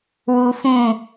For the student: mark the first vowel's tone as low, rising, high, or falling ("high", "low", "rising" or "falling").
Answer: low